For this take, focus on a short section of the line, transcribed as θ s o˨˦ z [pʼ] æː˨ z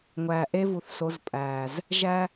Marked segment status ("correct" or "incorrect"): correct